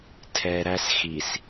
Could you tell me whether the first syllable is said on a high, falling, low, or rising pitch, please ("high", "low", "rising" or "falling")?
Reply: low